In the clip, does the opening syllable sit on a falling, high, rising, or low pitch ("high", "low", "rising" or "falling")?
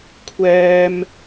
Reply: high